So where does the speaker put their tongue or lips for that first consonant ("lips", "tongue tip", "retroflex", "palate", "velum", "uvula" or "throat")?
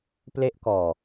lips